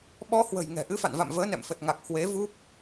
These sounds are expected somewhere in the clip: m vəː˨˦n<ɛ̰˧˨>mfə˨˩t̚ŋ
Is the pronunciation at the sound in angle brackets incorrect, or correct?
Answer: correct